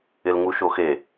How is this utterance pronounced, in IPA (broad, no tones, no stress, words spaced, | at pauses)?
ɪlŋuʃoxe